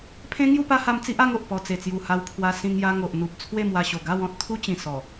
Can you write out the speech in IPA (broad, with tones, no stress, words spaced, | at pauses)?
pʰẽ˦ŋju˥˧pa˦ha˧m t͡si˦ʔa˦ŋo˨ʔ pɔ˨˩t͡se˨˩t͡sju˨˩ ha˧wpʰwa˧ sĩ˧ŋ ja˧ŋo˨ʔ n̪u˨p̚ t͡sʰwe˥˧mwa˧ɕo˨˩ ɡa˥˧wɔ̃˦t̚ t̪ʰu˦t͡ɕĩ˨˩ sɔ˨˩